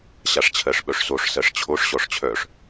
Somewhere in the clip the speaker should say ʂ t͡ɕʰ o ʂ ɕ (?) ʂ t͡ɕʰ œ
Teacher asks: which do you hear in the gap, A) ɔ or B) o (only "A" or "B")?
A